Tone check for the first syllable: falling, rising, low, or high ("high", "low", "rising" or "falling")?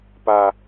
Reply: low